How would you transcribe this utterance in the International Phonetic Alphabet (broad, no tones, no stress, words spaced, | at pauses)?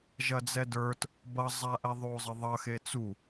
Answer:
ʒɐd͡zɛdə˞t | bʌzˤaʔɛ ðˤozˤəðˤʌxe t͡su